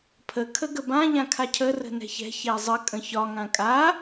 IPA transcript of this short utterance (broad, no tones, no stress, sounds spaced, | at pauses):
pʰ ə kʰ ə ɡ ə b ã ʎ ã kʰ a cʰ ə r ə̤ n ɛ̤ ç ɛ̤ ç ɛ zˤ ə kʼ ə̃ ç ɒ ŋ ã kʼ a